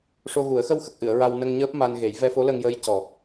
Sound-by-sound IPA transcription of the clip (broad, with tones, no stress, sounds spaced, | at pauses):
ʂ o˧ ɣ u˨˩˦ ə̯ x ə˧ w x ə˨˩ k̚ ʔ ɨ˨˩˨ ə̯ ɹ a˧ w n ə˧ ŋ ɲ əː˦˥ p̚ m a˧ n ɣ e˨˩˦ j v ɛ˧ f o˧˥ l ə˧ ŋ j əː˧˥ j c ɔ˨˩